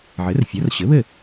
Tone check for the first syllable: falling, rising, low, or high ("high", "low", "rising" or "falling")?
rising